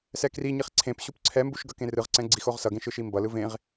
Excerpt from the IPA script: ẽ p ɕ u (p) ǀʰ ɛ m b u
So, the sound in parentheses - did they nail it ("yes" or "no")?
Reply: yes